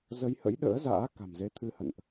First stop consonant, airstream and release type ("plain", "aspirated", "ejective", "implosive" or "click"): implosive